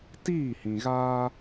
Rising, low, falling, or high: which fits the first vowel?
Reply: falling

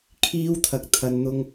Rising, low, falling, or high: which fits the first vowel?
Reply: high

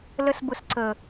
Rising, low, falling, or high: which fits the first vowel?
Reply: high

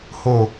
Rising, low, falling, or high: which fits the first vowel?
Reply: low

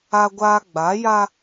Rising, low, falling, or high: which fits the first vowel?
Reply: high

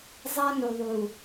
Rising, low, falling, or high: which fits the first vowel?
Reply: high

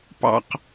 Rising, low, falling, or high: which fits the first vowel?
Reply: high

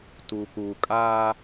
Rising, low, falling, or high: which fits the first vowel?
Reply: low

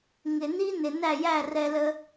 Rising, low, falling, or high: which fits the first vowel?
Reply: low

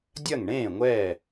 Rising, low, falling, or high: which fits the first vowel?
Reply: falling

